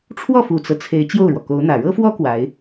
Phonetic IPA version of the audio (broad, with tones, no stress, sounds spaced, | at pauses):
ʈ͡ʂʰ w ɔ˥˩ f u˨˩ t͡s ɤ˦ t͡sʰ e˧˥ ɪ̯ t͡ɕ j o˥˩ ʊ̯ ɻ w ɔ˩ k o˧˥ ʊ̯ n̪ ä˨˩ ɻ ɤ˥ f w ɔ˥ k w a˧˥ ɪ̯